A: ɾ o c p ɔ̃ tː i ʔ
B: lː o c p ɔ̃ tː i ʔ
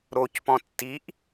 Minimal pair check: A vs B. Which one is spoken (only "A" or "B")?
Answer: A